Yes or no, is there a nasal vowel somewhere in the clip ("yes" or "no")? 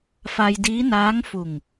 no